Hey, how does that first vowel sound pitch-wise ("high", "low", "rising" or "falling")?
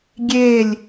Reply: falling